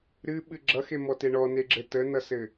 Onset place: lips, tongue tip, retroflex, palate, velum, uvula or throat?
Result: tongue tip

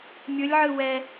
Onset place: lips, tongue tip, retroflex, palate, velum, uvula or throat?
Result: lips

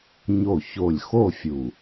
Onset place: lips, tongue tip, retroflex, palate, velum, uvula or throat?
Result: palate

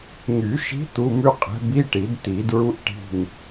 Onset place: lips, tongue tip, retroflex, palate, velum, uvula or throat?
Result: velum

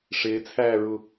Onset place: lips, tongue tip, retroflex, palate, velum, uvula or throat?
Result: retroflex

